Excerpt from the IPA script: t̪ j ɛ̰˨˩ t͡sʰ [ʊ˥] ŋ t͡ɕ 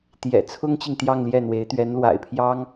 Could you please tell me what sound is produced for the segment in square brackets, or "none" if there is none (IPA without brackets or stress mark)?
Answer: ʊ˥